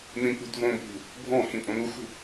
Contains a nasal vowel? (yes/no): yes